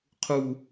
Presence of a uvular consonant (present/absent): present